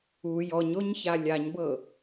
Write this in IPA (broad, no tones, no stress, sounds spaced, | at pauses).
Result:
u j ɔ ɲ o ɲ ç a lʲ a ɲ b ɤ